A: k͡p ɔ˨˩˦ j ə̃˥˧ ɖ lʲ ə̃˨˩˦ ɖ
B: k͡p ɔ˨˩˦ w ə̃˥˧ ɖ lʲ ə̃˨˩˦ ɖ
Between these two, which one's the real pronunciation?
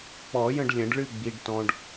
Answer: A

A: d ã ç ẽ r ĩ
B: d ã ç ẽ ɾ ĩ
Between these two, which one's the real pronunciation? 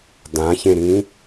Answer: B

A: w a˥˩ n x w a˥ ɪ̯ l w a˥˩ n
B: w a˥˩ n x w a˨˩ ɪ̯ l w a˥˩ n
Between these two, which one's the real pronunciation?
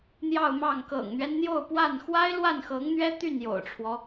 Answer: A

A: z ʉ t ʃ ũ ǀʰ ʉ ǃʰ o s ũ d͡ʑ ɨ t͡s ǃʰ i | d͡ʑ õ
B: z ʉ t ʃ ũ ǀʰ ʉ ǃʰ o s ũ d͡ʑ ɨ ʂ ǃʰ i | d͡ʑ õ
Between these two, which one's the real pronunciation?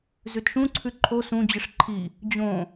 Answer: B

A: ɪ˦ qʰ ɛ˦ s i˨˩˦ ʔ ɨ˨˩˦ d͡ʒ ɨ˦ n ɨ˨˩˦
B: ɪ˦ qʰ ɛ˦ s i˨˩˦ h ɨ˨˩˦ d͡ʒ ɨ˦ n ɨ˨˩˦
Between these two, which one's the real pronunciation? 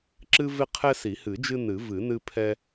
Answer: B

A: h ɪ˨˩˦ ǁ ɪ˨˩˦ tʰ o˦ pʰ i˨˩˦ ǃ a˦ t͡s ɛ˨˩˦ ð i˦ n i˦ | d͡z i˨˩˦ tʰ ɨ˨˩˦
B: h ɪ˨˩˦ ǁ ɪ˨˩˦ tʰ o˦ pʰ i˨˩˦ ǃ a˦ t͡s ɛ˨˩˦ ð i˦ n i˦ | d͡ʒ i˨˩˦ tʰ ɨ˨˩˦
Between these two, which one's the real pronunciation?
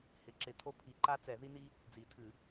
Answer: A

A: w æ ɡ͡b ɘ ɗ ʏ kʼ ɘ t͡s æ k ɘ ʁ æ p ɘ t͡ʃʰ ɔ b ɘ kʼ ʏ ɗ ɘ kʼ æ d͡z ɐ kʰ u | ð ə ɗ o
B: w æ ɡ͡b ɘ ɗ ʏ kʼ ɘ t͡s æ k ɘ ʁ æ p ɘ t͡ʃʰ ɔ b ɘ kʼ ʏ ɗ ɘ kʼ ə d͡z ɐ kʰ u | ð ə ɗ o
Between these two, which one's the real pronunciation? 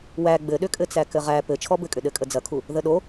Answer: B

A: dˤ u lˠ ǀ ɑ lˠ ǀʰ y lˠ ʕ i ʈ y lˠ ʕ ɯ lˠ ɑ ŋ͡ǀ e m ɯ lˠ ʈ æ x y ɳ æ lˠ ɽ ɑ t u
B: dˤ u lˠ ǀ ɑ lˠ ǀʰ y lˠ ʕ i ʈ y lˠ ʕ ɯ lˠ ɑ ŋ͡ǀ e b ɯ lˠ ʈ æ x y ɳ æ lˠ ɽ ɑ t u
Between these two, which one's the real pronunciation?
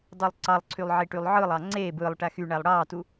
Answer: B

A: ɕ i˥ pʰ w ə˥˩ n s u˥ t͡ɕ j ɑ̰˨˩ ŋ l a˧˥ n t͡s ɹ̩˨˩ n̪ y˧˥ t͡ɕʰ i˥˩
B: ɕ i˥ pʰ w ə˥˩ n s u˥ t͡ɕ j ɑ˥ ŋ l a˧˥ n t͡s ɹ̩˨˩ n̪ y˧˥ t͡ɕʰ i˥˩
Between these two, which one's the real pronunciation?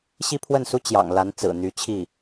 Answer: A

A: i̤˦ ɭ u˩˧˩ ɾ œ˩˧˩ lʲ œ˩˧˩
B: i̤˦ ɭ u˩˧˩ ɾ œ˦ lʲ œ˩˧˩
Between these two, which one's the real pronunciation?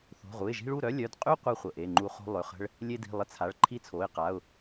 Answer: B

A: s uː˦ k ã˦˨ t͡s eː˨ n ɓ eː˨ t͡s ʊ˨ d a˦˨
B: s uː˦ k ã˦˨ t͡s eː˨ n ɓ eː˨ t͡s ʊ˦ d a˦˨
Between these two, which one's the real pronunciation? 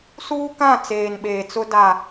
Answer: B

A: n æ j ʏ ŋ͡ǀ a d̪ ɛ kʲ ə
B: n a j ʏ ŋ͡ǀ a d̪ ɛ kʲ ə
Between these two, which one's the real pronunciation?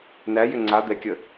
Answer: A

